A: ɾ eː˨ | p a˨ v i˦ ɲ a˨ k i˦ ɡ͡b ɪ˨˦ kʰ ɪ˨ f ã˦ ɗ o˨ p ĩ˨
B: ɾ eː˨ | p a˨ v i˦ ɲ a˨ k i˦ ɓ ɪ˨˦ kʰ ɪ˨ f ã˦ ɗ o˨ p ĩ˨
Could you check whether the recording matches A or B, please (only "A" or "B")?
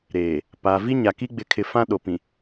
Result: A